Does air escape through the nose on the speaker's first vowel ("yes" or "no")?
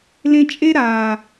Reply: yes